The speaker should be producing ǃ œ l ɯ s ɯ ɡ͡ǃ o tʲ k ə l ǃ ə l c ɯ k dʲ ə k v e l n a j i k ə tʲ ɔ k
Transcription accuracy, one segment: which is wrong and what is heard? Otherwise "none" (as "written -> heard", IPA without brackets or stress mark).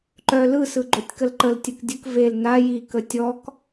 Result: c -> tʲ